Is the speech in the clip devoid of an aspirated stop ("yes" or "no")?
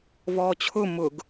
no